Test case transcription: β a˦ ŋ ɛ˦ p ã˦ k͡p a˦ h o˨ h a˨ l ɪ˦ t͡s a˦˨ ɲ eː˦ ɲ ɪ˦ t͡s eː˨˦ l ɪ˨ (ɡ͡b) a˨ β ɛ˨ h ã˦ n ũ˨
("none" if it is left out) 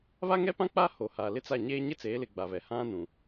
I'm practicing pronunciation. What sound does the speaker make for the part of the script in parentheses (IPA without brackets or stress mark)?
ɡ͡b